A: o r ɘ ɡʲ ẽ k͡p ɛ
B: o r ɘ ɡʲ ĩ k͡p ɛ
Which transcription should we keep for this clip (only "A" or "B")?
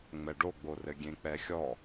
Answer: A